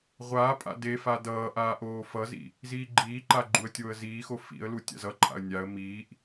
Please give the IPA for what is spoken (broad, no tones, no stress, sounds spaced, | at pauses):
ʁʷ aː pʼ a̰ d e f a d ʌː ʔ aː ʔ oː f ʌ z ḭ | z iː ɡ͡ǃ iː ǃ a ɡ͡ǃ u ə̯ tʲ oː ə̯ z iː x o f ḭ ə̯ l u tʲ a̰ z ʌ ǃʼ a̰ ə̯ nʲ a ə̯ m iː ʔ